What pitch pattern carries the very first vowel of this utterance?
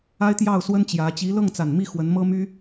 high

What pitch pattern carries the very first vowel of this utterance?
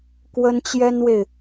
high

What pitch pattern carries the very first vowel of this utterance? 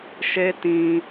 high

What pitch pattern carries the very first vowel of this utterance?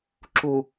low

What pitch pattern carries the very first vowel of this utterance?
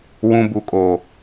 high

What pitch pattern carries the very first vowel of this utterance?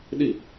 falling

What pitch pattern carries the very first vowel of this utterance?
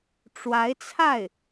rising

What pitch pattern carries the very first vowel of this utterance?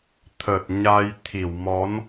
low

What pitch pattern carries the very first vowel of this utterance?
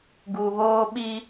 low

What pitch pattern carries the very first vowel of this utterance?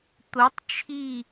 rising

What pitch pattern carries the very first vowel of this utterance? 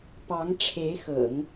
rising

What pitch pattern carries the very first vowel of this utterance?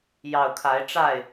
low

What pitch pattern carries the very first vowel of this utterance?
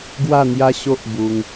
falling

